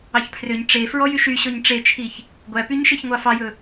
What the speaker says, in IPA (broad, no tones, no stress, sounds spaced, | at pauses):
ɑ ç pʰ r ø ɲ ʈ͡ʂ e f ɹ ɔ j y ʃ y ɕ ɔ ɲ ʈ͡ʂ e t͡ʃʰ i ç | ɡʷ æ p y ɲ ʃ e ç ŋʷ ɑ f ɑ j ɵ